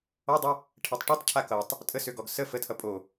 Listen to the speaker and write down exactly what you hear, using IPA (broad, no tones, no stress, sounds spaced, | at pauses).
ɔ dˤ ø | ʈʰ ɛ tˤ ʈ ø tˤ cʰ a k ʌ tˤ | tʼ ə s ø ɡ ɔ ɡ s ə f ə tʰ ʌ pʼ o